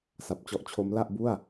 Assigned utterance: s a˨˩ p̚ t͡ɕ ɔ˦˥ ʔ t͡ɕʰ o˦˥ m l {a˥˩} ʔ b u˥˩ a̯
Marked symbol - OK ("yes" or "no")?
yes